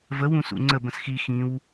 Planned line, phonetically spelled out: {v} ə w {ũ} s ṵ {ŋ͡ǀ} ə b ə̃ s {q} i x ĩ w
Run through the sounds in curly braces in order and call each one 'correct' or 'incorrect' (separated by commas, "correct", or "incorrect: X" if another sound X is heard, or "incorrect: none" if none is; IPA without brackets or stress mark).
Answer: correct, correct, correct, incorrect: x